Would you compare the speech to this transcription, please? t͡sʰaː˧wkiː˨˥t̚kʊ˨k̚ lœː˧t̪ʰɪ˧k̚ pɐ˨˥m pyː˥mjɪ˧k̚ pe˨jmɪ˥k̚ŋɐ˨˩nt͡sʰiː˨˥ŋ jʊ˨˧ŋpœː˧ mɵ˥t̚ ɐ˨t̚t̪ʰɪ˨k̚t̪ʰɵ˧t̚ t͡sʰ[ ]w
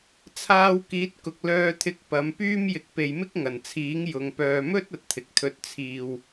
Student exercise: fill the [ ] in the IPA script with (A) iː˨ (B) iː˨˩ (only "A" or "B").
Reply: A